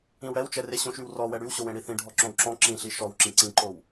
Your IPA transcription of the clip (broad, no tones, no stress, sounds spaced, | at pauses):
ĩ w ɽ ɛ w t͡ʃ ɛ r e ɕ õ ʃ y w r ɔ w ɛ ɽ y w ɕ o w ẽ ɽ i θ ĩ ɖʱ ɔ ǁ õ w ǁ ɔ̃ ǁ ĩ ɬ i ʃ ɔ w ǁ ĩ ǀ ĩ ǃ o w